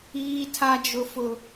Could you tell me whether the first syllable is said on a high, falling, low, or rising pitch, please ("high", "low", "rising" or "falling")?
high